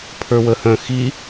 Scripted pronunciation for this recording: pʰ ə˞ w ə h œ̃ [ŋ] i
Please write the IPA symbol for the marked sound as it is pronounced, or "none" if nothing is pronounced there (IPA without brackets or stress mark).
x